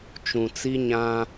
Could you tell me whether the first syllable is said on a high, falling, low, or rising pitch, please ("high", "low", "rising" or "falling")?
low